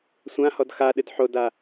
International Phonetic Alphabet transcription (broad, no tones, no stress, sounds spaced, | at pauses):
sʷ ã h ɔ d x a ɗ ɨ d ħ o d a